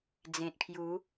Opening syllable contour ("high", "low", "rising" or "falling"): low